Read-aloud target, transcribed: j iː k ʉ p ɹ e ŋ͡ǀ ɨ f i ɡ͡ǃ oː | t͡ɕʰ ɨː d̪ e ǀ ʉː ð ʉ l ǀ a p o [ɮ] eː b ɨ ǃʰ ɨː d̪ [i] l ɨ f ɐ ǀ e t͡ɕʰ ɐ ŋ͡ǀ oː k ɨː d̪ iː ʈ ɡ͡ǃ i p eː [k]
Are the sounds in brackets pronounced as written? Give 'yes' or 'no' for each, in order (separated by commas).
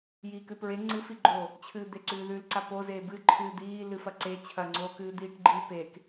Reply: no, no, yes